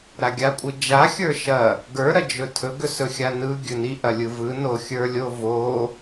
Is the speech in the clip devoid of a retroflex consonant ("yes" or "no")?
yes